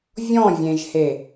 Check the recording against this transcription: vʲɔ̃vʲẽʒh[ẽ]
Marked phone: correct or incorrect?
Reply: incorrect